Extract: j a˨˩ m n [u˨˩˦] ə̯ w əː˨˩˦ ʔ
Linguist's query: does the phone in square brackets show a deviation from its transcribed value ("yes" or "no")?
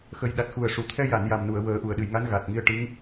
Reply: yes